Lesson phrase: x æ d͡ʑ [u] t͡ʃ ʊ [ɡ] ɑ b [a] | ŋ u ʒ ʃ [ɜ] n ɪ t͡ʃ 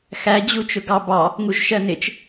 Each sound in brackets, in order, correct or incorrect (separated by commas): correct, correct, incorrect, correct